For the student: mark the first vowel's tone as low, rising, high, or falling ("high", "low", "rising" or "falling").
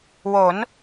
rising